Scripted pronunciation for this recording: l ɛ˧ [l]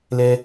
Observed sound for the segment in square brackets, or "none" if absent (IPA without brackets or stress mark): none